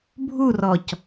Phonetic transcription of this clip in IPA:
bʱurɔc

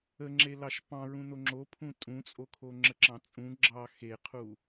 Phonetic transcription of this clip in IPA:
əŋ͡ǁelɑʃ pɑ̃ɹũno ŋ͡ǁo pʰũtʼũt͡sʼo kʰoŋ͡ǁəǁɑ̃t͡sʼũ ɡ͡ǁɑ xeqʰu

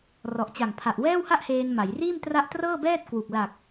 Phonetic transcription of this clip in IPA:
rɔ˨˩ʔt͡ɕa˨˩ŋ pʰa˨˩ʔwɛː˥˩wha˥˩ʔheː˧n ma˩˦jriː˥˩m tra˦˥ʔtrɤː˥˩ bɛː˥˩t̚kwu˨˩k̚ la˨˩k̚

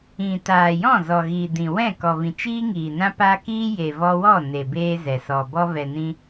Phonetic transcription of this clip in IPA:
ĩ˨ taː˨jɔ̃˦˨ zɔ˨ɣiː˨dĩ˨wɛ̃˦˨ kɔ˨vĩ˨t͡ʃiː˦ ŋiː˨nã˦paː˦ kiː˦je˨vɔ˧wɔ˦˨ ne˨beː˧ zɛ˨sɔ˨ bɔ˧vɛ˨nĩ˧

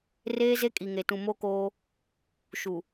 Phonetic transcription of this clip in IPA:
reː˦ze˦kʼi˨ŋe˨ tũ˨mo˦koː˦ | ʃu˨

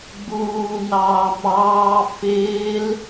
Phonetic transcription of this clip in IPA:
ɡ͡buː nɑːmɑː fɪːl

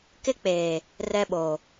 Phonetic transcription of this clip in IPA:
kɪ˦k͡peː˨ | rɛ˦ɓo˨

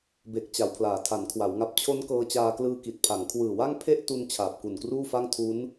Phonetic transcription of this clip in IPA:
be˨˩k̚ t͡ɕa˩˦wpʰlaː˩˦tʰa˩˦nkʰwa˩˦w ŋa˨˩p̚t͡ɕʰo˦˥n kɤː˧t͡ɕaː˧klɯː˧ki˨˩t̚ pʰa˩˦ŋkʰwɯː˨˩wa˥˩ŋ pʰe˥˩ʔtu˧n t͡ɕʰaː˨˩p̚ku˨˩nkruː˥˩fa˥˩ŋ tʰu˦˥n

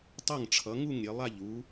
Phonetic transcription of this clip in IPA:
tˤʌ˥˨ŋʈ͡ʂʰʌ˨˦ŋu˥˨ŋ ɾʲe˨˦ lˠa˥˨ʎ u˨˦

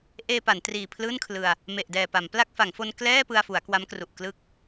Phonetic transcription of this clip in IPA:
ʔeː˧ pa˩˦ntriː˨˩pʰlɯː˥˩nkʰlɯ˧a̯ | me˨˩ʔdɛː˨˩pa˩˦mpla˥˩k̚ fa˩˦ŋfo˧n klɛː˥˩pɯ˧a̯fu˩˦a̯ kwa˦˥mkru˨˩ʔklɯ˥˩k̚

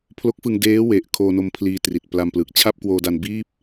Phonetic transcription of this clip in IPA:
pʰlo˦˥k̚fɯ˧ŋ deː˦˥we˨˩ʔ kʰoː˧no˧mpʰliː˧tri˨˩t̚ pla˧m plɯː˨˩k̚t͡ɕʰa˥˩p̚kwoː˧da˧n biː˥˩p̚

